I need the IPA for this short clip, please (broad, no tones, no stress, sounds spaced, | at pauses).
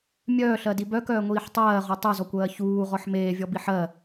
mʲ œː ɬ ɜ d i b œ k œː ŋʷ iː ħ tˤ ɜː ʁ ɔ tˤ œ z ɔ kʷ ɜː ç uː ʁ ɔ ħ m eː vʲ ɔ b i ħ ɜ